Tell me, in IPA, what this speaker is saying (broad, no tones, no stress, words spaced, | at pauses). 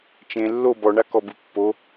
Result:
t͡ʃẽ lːo bɔɳakɔbɯ pːo